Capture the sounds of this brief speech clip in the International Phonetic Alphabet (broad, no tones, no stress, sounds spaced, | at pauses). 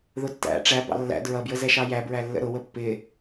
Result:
ð ʊ tː æ̰ ʈ͡ʂ æ b ɑ̰ lː æ̰ d ɹ ʌ b j ə z ɛ ʃ ɑ j æ b ɹ æ lː ə̰ ɾ ʊ w ə pː ɪ